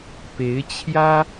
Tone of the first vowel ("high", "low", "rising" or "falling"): rising